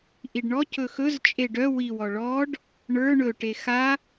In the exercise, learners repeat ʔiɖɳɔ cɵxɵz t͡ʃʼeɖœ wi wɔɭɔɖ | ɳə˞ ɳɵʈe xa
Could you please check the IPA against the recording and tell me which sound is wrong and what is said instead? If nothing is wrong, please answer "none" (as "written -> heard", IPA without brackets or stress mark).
none